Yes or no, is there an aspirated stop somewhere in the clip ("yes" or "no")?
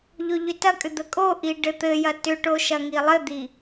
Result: no